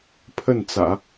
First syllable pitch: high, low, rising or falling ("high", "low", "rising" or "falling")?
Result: falling